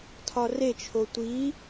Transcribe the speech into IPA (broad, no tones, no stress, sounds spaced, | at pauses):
tʰ ɒ r e t͡ʃʰ o tʷ i